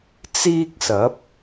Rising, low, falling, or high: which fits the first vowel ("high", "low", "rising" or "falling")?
high